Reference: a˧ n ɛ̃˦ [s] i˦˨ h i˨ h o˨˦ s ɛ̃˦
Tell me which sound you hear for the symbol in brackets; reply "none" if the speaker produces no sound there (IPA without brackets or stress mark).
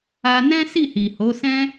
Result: s